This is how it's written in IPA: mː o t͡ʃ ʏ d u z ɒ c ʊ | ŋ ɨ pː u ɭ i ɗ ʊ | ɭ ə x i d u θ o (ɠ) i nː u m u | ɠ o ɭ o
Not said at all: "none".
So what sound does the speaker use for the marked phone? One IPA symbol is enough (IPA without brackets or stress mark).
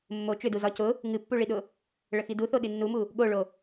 ɗ